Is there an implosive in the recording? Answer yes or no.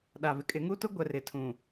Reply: yes